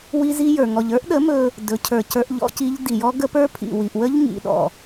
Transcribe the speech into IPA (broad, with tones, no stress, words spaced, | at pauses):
wi˦zi˦jə˞˨ ŋɔ˨ʎə˞˦ʔɗə˨˦ mɵ˦ | dɵ˨˦cʰə˞˨ cə˞˦ʔʎɔ̰˦ci˦ʎ di˨jɔ˦ ɡə˦pə˞˦pʰḭ˨ wi˨ʔwə˦ʎ ŋḭ˨ɗɔ̰˨